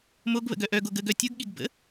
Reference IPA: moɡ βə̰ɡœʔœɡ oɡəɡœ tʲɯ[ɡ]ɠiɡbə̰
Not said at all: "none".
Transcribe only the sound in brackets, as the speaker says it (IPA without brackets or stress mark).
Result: ɡ